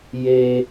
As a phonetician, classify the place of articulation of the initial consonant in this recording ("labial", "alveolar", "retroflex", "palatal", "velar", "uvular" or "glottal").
palatal